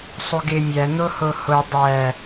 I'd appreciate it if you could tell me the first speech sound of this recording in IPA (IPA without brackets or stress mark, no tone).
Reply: sˤ